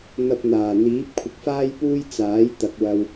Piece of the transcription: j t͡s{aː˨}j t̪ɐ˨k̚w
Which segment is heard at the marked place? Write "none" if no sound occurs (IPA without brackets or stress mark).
aː˨˥